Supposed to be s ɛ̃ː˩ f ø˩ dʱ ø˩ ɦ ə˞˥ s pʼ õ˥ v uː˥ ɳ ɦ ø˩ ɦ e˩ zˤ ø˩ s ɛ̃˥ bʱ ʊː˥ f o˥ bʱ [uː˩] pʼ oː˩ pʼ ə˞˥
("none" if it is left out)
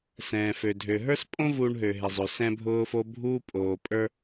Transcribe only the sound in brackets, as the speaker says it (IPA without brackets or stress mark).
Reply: uː˥